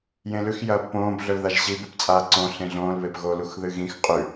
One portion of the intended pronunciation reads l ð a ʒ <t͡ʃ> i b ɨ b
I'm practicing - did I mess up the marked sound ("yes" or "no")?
yes